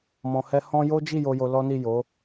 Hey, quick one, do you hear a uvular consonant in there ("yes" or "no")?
no